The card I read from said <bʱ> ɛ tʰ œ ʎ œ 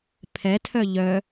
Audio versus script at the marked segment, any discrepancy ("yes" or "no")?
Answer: yes